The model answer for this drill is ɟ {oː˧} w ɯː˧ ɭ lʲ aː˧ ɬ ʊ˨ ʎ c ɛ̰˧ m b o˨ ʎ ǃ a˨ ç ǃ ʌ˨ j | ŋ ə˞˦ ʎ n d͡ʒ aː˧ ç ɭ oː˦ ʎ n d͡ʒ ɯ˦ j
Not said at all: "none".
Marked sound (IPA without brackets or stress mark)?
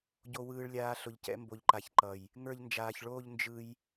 o˧